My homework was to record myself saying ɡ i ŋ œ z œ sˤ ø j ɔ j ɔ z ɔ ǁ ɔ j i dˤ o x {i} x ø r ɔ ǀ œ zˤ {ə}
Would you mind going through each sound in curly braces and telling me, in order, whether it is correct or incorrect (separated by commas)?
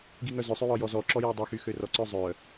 incorrect, incorrect